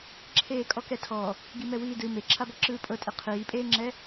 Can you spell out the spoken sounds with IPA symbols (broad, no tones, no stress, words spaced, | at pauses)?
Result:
ǁʰeːkʼɔkɛtʰɔ | ɡimɛwiːdɯ meǁʰabɔ ǁɯːpʼɤtʼe qʰiːpʼeːŋ͡ǁɛ